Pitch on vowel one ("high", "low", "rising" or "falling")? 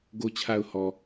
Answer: low